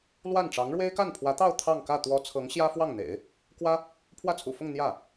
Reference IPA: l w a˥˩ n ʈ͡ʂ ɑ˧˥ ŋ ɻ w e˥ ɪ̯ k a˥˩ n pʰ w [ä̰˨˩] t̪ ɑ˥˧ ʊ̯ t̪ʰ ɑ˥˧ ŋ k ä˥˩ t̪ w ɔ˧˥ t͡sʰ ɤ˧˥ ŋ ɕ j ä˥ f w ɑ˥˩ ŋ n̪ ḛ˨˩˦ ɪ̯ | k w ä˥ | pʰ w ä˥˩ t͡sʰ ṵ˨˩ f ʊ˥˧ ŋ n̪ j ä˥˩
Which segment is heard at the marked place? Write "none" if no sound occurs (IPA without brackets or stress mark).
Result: ä˧˥